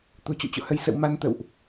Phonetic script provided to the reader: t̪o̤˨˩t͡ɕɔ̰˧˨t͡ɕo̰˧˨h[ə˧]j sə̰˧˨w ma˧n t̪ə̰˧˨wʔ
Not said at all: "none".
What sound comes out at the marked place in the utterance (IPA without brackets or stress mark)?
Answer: ə˧